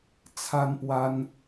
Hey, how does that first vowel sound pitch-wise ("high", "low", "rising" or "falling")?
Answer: high